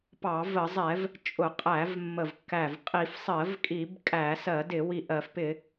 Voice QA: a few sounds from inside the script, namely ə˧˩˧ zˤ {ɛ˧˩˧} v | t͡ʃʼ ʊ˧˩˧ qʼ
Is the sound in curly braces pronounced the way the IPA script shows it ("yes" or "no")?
yes